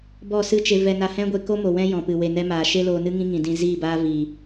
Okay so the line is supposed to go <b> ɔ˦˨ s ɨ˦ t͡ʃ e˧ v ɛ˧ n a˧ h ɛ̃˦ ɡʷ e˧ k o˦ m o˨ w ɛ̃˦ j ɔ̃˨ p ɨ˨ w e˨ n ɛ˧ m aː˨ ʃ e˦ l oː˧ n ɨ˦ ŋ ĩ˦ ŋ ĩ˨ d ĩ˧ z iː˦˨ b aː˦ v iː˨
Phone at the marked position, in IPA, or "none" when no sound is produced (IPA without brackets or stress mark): b